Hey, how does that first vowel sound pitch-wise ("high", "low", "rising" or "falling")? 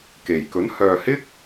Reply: low